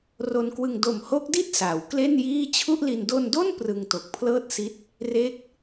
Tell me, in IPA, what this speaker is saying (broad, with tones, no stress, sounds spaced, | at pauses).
r o˧ n k w ɯ˧ ŋ d o˨˩ m h o˦˥ k̚ d i˥˩ t̚ s a˩˦ w k l e˥˩ n j iː˥˩ t͡ɕʰ u˥˩ ʔ l i˧ n d o˧ n d o˥˩ n p r ɯ˧ ŋ t o˨˩ k̚ pʰ l ɤː˥˩ t̚ s i˦˥ t̚ | r e˦˥ k̚